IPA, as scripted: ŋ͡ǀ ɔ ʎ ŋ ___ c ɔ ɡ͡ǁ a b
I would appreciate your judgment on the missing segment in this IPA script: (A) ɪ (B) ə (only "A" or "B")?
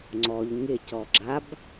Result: A